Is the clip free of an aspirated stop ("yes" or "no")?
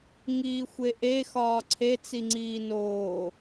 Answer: no